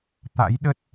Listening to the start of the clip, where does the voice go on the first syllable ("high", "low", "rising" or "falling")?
rising